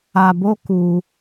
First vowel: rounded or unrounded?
unrounded